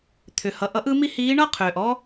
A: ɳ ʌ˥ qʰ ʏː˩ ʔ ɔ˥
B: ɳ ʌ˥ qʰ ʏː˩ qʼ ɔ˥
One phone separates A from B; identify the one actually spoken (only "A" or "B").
A